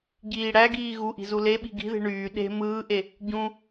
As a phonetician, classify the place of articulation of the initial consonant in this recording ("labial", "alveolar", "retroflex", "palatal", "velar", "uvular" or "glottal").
palatal